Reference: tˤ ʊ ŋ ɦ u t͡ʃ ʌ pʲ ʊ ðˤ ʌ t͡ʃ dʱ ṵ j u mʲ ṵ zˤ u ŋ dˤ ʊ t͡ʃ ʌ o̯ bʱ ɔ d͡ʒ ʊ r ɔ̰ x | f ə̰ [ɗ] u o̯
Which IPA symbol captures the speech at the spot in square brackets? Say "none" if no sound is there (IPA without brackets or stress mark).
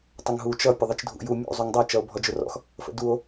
d